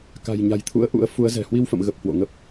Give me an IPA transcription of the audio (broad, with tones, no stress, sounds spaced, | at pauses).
k a̤˨˩ j ɲ a̤˨˩ j t̪ʰ ṵ˧˥ ə̯ ʔ ṵ˧˥ ə̯ f u˨˦ ə̯ z ɛ̤˨˩ h w i˧ w f ə̰˧˨ m ɣ ə˨˩ p̚ h w o̰˧˨ ŋ ə˦˥ p̚